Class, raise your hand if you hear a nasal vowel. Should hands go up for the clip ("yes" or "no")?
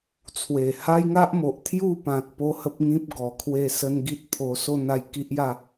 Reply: yes